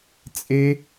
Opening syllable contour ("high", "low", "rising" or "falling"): high